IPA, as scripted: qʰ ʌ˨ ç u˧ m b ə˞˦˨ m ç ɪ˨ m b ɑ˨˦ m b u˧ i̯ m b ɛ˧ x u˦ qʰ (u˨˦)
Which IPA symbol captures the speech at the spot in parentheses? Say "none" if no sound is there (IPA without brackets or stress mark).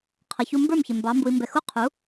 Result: u˨˦